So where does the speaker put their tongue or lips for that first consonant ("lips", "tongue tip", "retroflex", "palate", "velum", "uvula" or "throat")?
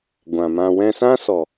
velum